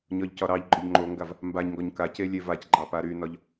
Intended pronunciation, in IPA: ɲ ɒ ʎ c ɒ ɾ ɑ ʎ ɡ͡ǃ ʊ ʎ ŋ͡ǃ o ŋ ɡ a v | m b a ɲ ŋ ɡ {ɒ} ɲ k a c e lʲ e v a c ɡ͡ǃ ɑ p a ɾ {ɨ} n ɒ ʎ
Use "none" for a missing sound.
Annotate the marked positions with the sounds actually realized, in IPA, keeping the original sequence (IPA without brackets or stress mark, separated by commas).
ɒ, y